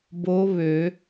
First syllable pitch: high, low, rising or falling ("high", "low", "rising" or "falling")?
rising